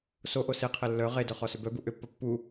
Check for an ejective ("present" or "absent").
absent